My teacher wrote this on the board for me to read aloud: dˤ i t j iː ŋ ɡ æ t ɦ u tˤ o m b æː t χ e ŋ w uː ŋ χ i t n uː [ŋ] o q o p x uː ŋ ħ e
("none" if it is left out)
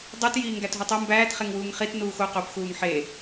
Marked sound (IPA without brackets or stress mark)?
x